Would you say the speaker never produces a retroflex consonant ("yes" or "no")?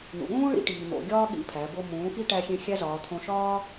no